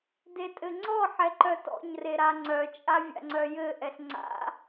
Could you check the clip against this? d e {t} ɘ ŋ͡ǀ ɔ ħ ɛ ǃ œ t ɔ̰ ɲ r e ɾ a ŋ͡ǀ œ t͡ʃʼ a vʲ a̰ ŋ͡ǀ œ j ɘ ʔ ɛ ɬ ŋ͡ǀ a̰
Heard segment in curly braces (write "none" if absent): tʼ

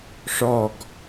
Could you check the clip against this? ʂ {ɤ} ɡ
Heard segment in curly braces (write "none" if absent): ɔ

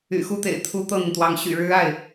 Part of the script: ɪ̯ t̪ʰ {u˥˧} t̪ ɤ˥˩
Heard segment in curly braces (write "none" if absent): u˥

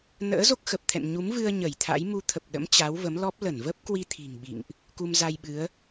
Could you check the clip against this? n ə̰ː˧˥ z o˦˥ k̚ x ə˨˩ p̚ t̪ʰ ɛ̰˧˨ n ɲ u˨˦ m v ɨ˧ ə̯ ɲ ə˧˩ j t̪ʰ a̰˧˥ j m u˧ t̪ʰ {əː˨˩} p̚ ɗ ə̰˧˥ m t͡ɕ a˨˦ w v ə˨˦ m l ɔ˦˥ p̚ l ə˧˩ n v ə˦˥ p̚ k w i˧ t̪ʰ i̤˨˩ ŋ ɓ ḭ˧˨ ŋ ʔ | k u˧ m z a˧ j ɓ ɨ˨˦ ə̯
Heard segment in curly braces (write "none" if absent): ə˨˩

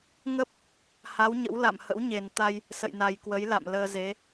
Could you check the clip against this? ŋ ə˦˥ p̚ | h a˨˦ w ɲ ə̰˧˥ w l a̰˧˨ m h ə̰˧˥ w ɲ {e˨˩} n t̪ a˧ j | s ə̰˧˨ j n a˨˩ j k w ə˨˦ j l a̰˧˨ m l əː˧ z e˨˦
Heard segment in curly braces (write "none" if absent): e˨˩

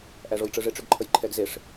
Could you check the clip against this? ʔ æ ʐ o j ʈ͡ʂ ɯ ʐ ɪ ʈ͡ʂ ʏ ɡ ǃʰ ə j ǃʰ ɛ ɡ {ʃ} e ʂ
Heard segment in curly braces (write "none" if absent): z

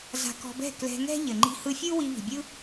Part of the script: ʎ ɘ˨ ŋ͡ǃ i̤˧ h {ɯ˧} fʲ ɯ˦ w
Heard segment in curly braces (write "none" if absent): ɯ˧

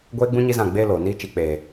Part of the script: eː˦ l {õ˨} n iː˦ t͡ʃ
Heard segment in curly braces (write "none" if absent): o˨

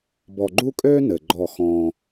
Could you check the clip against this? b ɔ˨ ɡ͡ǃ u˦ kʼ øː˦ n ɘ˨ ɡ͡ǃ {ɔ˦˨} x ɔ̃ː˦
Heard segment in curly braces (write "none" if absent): ɔ˦˨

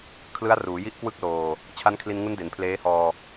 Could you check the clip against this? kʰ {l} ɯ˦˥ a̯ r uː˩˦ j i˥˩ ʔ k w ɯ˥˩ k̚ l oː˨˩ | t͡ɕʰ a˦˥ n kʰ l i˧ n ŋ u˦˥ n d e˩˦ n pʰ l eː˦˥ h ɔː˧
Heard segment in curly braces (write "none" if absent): l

